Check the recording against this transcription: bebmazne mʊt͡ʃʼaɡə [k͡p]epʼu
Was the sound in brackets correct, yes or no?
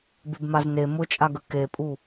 no